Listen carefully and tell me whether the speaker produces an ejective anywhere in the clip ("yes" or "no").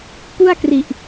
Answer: no